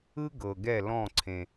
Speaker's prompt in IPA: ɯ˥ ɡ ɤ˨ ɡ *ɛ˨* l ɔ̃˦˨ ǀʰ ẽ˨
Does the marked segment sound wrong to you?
yes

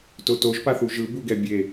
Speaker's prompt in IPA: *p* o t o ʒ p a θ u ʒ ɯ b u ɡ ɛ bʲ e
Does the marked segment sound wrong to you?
yes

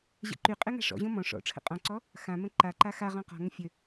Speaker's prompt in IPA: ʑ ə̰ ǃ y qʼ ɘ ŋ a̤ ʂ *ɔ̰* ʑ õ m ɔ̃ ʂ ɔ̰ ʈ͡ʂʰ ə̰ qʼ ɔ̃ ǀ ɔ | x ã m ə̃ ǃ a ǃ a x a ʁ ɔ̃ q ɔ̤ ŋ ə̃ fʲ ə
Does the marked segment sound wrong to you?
no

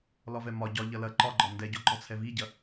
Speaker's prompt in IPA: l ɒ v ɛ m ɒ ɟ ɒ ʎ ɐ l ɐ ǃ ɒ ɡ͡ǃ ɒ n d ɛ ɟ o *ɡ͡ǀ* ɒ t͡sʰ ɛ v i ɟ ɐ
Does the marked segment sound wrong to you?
yes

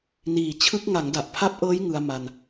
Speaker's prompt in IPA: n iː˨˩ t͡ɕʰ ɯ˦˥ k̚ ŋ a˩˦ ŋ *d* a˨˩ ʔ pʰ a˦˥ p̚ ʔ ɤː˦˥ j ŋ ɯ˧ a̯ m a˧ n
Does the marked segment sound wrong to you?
no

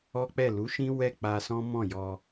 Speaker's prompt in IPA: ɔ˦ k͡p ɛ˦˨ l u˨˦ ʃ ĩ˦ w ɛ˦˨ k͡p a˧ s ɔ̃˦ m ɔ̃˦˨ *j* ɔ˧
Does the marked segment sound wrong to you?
no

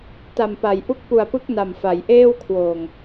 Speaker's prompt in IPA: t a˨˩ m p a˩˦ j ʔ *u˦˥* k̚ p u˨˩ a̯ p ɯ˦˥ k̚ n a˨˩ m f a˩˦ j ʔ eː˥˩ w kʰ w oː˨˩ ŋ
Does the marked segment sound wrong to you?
no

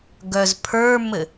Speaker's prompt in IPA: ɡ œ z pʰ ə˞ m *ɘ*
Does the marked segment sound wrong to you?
no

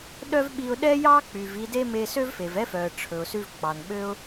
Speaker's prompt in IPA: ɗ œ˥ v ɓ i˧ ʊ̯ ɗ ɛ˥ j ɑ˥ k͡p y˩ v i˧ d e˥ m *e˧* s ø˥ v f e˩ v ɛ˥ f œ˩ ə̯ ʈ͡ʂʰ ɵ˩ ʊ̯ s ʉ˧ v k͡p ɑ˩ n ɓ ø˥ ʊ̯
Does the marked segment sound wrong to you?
no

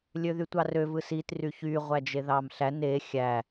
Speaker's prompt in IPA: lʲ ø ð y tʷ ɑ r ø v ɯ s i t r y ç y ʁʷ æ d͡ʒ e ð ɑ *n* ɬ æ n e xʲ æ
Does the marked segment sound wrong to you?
yes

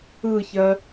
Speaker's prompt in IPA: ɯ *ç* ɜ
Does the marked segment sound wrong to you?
no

